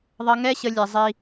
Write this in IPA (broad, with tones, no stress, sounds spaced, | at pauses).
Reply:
ðˤ ʌ˦ ŋ ɛ˦ ɕ ə˧ lʲ ɛ˧ zˤ i˧